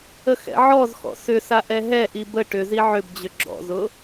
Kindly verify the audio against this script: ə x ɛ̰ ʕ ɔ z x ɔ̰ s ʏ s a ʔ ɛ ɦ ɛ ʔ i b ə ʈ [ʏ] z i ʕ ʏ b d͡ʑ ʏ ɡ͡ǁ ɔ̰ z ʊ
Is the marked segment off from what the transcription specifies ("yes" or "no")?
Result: no